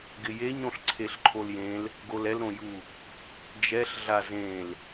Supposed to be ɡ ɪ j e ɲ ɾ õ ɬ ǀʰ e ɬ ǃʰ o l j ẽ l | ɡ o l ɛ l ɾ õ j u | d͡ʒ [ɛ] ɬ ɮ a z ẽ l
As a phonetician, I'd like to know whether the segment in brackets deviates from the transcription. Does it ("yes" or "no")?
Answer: no